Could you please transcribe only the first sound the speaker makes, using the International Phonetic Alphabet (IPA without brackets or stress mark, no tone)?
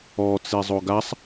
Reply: ɔ